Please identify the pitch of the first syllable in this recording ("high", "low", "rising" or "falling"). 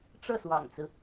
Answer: falling